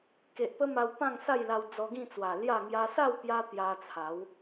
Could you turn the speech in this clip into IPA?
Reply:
ke˨ʔpə˦ma˧w pã˥˧ŋsa˥˧jla˧w d͡zɔ˧ɡĩ˥˧ t͡swa˨˩lja˥˧ ŋja˧sa˥˧wpja˧ t̪ja˧t͡sʰa˨˦w

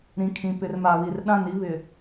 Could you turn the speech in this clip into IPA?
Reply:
ɾĩ˨kʰĩ˨ pɪ˨r ma˨βi˨r ɗã˦˨ni˦ βɪ˨

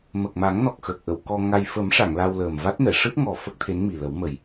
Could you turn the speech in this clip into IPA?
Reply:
mə˨˩k̚ma˨˩˦ŋnɔ˨˩k̚ xəː˨˩k̚ʔə˨˩˨w kɔ˧ ŋa˧j fə˨˩˦mʂa˨˩˨ŋ la˧wləː˨˩m va˦˥t̚nɛ˨˩˨ ʂɨ˦˥t̚ŋɔ˨˩ fə˦˥k̚t̪ʰe˧˥nmi˨˩ lə˨˩˦wmə˨˩j

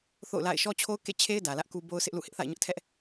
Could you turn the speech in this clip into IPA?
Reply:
θo̰˦˨ʊ̯la̰˦˨ɪ̯ ʃɔ˦t͡ɕʰo˦ʊ̯kḛ˦˨t͡ɕʰe˦ɪ̯ dä˨lä˦ʔku˦ bo˦ʊ̯sʰɪ˦ʔlṵ˦˨ hɪ˦ʔθa̰˦˨ɪ̯ɲʊ˦ʔtʰɛ˦ʔ

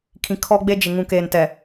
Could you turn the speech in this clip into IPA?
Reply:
kʰĩ˨kʰɔ˦ɡ͡be˦d͡ʒɪ˨ ŋũ˨keː˨n tɛ˨

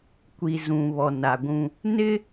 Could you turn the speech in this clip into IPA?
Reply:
kʷi˨zũ˨ βɔ˨na˨ɡʷũ˦ | nɪ˦

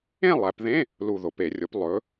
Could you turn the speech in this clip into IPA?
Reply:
ẽ˥˨ lˠæ˩˧pðẽ˧˥˧ | lu˧˩ðo˩˧pe˧˩˧rʲo˩˥p lˠɵ˩˧

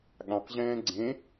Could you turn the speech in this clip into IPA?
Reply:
ɠãqʑɛ̃ː ɡ͡ǀẽ

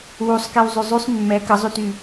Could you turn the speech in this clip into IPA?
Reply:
wusˤkew zˤyzˤysˤ mːɛ kəzˤyty

